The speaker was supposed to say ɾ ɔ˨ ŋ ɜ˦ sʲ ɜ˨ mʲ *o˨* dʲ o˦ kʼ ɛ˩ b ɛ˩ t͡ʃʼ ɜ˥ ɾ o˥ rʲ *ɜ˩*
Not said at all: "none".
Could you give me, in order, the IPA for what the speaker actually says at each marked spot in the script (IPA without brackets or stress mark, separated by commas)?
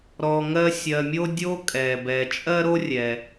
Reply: o˥, ɛ˩